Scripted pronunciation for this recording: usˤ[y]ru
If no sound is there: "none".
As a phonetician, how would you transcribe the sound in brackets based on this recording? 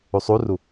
u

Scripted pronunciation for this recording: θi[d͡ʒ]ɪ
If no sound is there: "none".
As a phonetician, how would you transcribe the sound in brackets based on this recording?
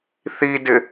d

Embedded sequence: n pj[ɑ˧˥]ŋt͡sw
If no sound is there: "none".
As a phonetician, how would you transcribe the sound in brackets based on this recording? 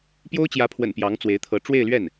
ɑ˧˥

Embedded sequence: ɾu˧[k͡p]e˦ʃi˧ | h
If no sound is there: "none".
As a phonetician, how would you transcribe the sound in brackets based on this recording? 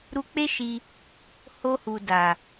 k͡p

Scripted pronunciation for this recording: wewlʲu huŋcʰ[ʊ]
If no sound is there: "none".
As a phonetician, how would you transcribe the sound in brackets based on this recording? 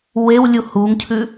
ʉ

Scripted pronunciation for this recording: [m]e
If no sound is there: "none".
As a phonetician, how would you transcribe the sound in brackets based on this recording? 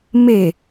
m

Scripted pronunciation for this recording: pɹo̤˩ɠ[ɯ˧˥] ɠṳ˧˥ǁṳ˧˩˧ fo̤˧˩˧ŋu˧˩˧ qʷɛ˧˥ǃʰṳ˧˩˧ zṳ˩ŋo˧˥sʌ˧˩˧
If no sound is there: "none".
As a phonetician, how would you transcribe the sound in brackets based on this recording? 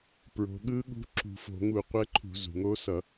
ɯ˧˥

